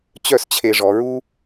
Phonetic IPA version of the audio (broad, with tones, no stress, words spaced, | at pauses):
t͡ɕœ˥˧st͡ɕʰe˧ʐɔ˩˧ɹu˥